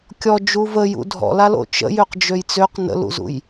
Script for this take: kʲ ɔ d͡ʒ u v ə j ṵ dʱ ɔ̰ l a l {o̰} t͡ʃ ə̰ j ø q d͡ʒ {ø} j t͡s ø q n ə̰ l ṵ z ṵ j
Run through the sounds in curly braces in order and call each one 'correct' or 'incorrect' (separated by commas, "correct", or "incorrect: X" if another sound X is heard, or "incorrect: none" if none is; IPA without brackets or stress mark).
correct, correct